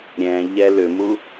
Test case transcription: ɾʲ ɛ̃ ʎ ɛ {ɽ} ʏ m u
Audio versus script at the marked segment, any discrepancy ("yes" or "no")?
yes